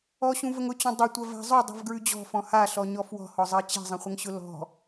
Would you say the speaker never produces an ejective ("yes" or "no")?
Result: yes